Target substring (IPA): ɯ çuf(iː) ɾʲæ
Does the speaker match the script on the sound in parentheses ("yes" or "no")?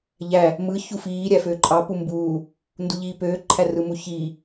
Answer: yes